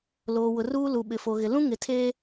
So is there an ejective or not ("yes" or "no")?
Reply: no